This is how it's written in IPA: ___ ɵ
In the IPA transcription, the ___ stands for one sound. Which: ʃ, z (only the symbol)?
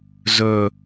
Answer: z